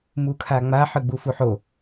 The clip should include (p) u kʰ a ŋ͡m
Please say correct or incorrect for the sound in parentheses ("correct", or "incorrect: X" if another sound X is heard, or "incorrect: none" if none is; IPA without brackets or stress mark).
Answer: incorrect: m